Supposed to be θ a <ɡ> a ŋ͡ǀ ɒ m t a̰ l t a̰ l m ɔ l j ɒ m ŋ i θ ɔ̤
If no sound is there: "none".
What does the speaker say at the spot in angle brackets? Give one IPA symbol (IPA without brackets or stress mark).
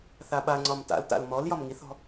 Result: ɓ